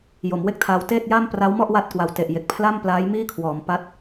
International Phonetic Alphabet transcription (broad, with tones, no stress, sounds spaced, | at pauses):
j o˩˦ m w e˥˩ k̚ tʰ aː˧ w t eː˥˩ t̚ j a˥˩ m p r a˦˥ w m ɔ˥˩ ʔ w a˥˩ t̚ k w a˨˩ w t e˨˩ ʔ j e˨˩ k̚ pʰ l a˥˩ m p l aː˦˥ j m iː˥˩ kʰ w ɔː˩˦ m p a˦˥ t̚